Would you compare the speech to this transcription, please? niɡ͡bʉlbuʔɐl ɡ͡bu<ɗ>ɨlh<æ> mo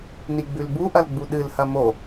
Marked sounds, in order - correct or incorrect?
correct, incorrect

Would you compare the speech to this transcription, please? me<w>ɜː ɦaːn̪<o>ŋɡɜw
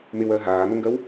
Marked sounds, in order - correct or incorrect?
correct, correct

